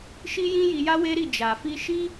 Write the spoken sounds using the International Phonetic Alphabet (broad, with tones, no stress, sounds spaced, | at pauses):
ʃ i˦ j ĩ˦ j i˧ j a˦ w e˦ ɾ i˦˨ d͡ʒ a˨ f i˧ ʃ i˦